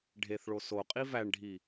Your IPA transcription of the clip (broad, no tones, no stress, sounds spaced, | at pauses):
ɖʱ e θ ɭ o s o qʼ i v æ ɳ ɖʱ i